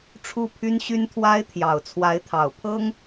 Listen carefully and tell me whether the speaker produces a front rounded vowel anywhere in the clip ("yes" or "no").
yes